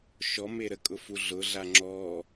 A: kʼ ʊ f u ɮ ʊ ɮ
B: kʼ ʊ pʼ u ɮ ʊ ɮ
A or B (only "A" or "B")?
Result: A